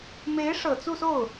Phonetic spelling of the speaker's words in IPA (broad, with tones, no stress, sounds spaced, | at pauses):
m e˧˥ ɪ̯ ʂ ɤ˨˩ t͡s u˥˧ s o˥˩ ʊ̯